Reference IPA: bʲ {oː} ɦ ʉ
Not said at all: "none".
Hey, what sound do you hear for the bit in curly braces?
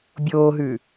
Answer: oː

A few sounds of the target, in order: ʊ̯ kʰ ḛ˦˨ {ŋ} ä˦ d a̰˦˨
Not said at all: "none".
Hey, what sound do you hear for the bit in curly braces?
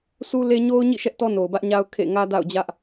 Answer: ŋ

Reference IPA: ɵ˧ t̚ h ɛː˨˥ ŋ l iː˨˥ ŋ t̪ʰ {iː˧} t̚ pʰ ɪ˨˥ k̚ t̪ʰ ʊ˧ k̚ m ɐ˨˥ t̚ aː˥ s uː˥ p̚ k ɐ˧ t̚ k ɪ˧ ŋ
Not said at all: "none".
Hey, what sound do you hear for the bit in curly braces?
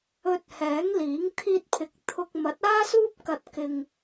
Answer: iː˧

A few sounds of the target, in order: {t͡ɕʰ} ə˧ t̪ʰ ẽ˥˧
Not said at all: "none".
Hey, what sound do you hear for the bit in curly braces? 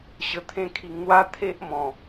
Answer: ɕ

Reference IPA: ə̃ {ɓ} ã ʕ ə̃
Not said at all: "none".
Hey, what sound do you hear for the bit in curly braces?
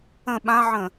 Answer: ɓ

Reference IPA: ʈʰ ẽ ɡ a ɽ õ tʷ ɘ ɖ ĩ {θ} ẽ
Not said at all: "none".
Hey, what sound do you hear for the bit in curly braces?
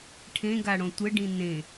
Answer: n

